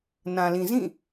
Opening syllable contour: low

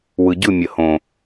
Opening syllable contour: low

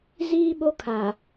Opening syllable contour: high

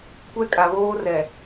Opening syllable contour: high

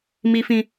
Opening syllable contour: high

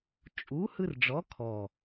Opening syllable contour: rising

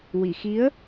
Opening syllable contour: low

